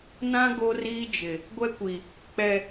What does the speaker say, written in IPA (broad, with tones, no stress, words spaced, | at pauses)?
nã˦ ɡo˦riː˦d͡ʒɪ˨ | ɡʷɛ˦kʷi˨ | k͡pɛ˨